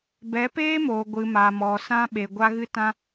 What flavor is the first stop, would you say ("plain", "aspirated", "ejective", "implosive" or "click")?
plain